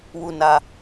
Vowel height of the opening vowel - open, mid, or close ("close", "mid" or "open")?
close